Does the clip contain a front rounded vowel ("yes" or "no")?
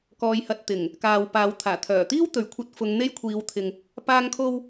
yes